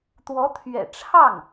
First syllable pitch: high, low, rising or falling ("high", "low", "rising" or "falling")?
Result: rising